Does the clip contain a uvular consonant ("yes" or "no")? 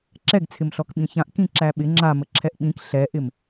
no